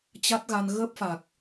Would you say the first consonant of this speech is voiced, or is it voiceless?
voiceless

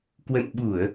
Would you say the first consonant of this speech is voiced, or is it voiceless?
voiceless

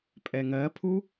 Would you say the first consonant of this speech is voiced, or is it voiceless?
voiceless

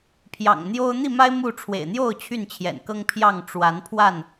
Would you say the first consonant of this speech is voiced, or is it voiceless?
voiceless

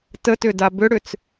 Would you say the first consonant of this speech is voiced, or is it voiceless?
voiceless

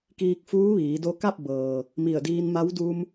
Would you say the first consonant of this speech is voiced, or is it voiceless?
voiceless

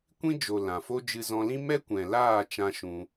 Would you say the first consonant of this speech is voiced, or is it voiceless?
voiceless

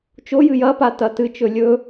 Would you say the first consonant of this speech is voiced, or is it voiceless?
voiceless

